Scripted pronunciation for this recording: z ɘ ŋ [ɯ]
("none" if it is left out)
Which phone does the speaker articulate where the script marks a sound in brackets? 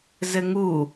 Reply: u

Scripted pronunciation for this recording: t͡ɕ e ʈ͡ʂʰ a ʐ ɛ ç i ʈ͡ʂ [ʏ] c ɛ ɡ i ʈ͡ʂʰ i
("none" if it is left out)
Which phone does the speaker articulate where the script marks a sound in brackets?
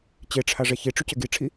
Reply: ʏ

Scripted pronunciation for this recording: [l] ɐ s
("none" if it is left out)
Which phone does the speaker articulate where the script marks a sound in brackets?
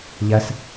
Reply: ʎ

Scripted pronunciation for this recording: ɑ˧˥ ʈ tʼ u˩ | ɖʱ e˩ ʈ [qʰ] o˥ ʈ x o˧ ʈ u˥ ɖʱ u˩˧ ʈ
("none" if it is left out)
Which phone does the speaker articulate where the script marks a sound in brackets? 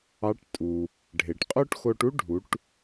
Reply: qʼ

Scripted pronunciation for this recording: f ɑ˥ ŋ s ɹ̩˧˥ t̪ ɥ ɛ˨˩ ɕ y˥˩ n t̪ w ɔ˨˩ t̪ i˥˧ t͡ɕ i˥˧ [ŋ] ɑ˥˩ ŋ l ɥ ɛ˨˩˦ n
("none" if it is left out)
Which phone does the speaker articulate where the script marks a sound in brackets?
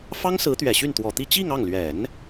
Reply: ŋ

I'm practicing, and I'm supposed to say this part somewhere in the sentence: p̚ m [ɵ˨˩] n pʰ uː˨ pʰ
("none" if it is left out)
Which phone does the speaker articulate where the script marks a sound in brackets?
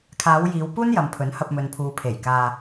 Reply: ɵ˨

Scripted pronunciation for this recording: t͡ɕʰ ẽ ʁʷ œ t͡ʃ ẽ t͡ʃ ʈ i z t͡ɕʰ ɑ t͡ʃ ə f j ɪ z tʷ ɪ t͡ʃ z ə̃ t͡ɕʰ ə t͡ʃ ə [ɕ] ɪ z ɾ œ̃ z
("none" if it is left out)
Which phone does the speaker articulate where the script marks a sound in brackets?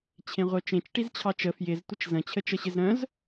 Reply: ɕ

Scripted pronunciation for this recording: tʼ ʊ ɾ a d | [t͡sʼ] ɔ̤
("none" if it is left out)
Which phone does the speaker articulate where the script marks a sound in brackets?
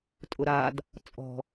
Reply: t͡sʼ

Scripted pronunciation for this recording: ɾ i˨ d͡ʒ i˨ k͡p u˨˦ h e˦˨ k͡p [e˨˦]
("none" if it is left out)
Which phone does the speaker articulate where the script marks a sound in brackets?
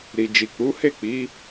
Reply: i˨˦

